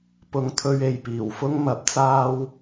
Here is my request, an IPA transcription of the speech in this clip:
pʊ˨˧ŋt̪ʰɵ˧ɥ e˨jpiː˨˩wfʊ˥ŋ mɐ˨˥p̚t͡saː˧w

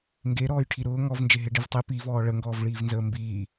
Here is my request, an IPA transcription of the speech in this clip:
ŋɡeɾɔːjʈʰi ɾʊː ŋɔvnd͡ʒe ɦeɖivtˤe pivɔː ɭəŋɡɔːvɭiːvnzəː mbiː

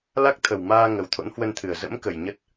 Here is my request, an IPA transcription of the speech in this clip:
la˦˥k̚t̪ʰə˨˩wmaː˧ ŋə˨˦wt̪ʰo̰˧˥nhwə˧nt̪ʰɨ˨˩ə̯ zə̰˧˥m kə˨˩jɲə˦˥t̚

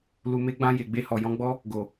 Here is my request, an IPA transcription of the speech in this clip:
lu˨me˧ɡ͡bã˧ je˨ɡ͡be˧hɔ˨ jɔ̃˧ɡ͡bɔ˦ | ɡo˨

